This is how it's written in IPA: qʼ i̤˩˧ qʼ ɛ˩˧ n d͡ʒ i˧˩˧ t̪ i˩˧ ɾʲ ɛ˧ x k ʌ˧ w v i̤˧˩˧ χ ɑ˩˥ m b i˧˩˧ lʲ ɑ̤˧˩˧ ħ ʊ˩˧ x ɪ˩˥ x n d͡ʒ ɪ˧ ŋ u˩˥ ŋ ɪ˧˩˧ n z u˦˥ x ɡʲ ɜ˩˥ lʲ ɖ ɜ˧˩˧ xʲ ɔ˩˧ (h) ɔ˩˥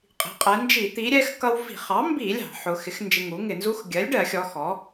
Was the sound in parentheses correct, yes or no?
no